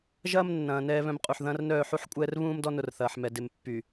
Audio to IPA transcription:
ʒ ɐː˦ m nː ɐ̃ː˨ n ɛː˦ β œ̃˦ m qʼ u˨ ħ ð ɐ̃ː˦ r n œː˦˨ ħ u˦ ħ kʷʼ ɛː˦ r β ũː˦ m d ɔ˦ n ʊ˨ r θ ɐː˨ ħ m ɛ˨ d ɪ˨ m pː y˨

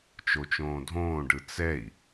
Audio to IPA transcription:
t͡ʃ o t͡ʃ õː dʱ õː ɖ ɯ t͡s ɛ i̯

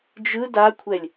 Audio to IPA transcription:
d͡ʒ ɯ d a kʷʰ ɛ lʲ

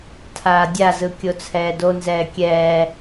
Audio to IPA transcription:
tʰ aː dʲ a z ɯ kʲ o t͡sʰ ɛː d o n z ɛː kʲ ɛː

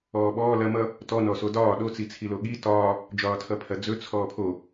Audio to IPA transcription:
ɔː ɓ ɔː l ɐ m ʌ | t ɔ n ɔ s o d ɒː ɗ o t͡s i t͡sʰ i l o ɠ i t ɒː | d͡ʒ ɒː tʰ ʌ pʰ ɐ d͡z ɵ t͡sʰ ɔː pʰ o

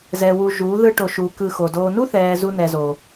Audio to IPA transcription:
z ɛ˨ w u˨ ʒ u˨˦ ð ɯ˧ ʈ o˨ ʃ u˨ k ɯ˧ x o˨ d oː˨ n u˦ θ ɛː˨ z u˧ n ɛ˨ z oː˨

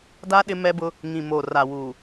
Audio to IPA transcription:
d a˦ ɗ ɪ˦ m ɛ˦ b ʊ˦ | ŋ ĩ˨ m oː˨ r a˨ w uː˨

